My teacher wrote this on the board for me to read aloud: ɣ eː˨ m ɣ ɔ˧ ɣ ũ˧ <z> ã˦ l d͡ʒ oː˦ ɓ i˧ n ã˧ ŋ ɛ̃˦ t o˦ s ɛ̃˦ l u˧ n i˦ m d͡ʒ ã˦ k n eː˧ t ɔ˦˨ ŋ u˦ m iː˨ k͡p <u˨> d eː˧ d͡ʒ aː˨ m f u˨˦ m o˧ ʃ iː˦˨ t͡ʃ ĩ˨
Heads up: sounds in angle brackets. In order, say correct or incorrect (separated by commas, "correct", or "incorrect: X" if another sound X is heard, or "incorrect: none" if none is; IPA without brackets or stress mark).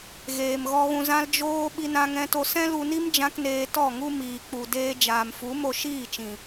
correct, correct